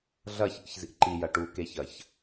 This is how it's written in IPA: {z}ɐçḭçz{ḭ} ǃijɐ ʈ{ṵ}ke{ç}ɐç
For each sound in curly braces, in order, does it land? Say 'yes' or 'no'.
no, yes, no, yes

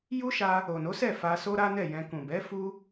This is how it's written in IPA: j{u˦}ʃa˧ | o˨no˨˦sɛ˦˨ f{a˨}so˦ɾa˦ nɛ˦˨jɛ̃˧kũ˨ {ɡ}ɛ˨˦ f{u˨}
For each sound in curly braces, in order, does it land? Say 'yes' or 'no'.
yes, no, no, no

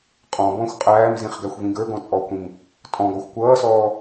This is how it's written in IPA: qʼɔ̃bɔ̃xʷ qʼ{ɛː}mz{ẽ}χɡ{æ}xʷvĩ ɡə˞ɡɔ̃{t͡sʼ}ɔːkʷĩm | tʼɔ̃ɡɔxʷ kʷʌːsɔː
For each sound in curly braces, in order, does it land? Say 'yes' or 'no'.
no, no, yes, yes

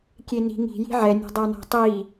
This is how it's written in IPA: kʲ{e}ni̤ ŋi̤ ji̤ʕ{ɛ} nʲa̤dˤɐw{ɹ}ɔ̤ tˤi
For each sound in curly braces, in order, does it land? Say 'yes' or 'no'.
yes, yes, no

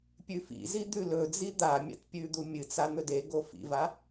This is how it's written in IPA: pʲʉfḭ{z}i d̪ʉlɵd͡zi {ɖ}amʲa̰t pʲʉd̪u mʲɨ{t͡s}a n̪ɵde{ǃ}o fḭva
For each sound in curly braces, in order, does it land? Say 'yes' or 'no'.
yes, no, yes, no

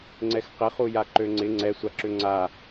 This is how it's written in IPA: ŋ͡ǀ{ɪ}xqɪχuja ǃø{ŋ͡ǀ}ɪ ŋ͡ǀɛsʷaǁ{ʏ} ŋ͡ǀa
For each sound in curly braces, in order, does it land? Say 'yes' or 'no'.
no, yes, yes

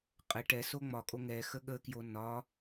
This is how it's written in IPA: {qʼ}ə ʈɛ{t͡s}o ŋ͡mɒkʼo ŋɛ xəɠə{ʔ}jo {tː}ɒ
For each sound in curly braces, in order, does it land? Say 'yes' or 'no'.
yes, no, no, no

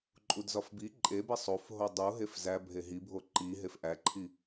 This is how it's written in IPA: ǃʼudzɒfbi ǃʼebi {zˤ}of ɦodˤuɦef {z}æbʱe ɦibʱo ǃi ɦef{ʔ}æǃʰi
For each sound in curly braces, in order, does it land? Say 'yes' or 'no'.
no, yes, yes

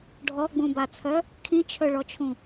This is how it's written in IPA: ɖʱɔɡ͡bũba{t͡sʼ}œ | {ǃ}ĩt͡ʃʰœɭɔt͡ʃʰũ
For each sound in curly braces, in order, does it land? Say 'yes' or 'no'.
no, no

